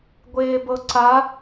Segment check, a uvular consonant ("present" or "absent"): absent